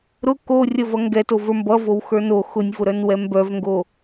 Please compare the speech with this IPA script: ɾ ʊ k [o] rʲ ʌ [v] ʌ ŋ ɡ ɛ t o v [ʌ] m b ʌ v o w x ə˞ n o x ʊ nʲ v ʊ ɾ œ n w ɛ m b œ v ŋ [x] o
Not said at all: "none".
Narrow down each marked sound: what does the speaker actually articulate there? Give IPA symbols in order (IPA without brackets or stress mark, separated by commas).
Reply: o, v, ə˞, ɡ